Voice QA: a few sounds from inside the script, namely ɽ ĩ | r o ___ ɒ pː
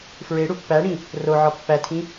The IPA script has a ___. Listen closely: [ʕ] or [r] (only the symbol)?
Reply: ʕ